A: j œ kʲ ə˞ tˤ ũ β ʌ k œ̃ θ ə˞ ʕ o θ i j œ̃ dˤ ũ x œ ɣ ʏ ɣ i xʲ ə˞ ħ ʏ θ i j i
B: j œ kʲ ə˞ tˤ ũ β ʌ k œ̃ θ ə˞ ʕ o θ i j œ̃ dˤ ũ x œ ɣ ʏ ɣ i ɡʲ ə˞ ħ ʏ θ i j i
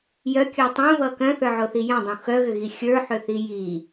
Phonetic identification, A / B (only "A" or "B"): A